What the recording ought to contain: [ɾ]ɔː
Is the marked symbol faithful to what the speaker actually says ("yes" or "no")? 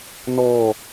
no